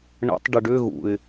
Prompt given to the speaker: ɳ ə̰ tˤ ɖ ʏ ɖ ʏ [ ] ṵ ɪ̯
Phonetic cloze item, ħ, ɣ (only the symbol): ɣ